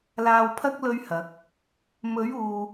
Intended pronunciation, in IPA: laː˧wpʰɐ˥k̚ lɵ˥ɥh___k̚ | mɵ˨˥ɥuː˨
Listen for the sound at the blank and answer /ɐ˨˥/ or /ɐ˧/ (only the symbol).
ɐ˨˥